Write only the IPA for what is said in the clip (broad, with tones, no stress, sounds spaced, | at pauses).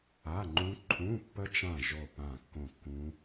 a˧˥˧ ŋ͡ǃ ũ˦˥ ǃʰ ũ˧˥˧ pː ə˦˥ t͡ʃ ã˦˨ ʒ o˦˨ p ã˦˨ kː õ˦˨ kː ũ˦˥